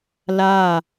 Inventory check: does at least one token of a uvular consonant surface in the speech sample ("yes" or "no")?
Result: no